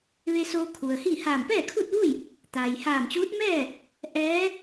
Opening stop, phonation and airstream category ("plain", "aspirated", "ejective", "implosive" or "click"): aspirated